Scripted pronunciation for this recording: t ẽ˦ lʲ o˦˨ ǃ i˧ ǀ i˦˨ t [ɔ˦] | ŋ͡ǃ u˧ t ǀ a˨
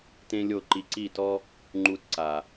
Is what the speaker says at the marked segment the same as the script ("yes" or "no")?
yes